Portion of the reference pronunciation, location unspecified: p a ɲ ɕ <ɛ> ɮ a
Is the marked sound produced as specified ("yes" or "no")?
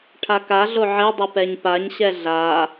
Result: yes